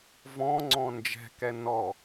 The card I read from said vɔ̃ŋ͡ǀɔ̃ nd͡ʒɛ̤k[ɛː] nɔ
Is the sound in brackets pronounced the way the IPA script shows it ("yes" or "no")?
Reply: no